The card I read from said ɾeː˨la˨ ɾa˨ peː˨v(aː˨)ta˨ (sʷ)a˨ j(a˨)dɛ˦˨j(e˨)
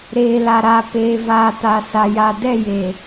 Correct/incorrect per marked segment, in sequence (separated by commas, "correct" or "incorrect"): correct, incorrect, correct, correct